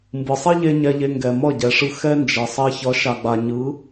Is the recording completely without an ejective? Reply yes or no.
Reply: yes